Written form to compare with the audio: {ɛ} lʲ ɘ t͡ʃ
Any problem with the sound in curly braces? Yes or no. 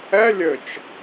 no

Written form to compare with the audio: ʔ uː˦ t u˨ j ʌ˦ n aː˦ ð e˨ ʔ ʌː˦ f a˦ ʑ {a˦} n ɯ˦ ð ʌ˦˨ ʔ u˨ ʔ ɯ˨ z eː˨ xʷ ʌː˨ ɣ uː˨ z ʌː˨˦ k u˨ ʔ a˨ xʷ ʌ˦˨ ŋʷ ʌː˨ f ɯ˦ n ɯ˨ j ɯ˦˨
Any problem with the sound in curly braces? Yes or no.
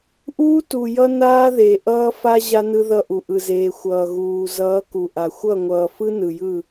no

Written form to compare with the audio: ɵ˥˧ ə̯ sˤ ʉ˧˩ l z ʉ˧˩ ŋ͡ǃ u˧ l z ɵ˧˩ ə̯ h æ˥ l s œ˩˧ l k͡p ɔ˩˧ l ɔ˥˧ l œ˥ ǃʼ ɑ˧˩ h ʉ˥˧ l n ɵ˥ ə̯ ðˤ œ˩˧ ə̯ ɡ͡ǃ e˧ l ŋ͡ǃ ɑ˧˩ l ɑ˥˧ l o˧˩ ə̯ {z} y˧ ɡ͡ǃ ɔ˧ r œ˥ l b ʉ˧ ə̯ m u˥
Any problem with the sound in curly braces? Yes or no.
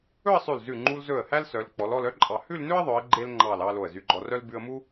no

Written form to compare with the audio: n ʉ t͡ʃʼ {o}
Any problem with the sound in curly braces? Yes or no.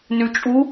yes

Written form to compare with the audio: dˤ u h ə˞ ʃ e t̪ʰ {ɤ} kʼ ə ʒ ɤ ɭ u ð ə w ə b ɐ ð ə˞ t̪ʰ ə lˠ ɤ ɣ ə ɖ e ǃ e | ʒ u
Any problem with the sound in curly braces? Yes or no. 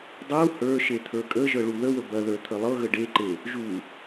yes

